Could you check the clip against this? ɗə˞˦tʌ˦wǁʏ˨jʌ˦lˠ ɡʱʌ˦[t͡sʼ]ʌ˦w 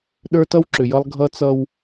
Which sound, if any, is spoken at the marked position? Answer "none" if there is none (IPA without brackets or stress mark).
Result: t͡s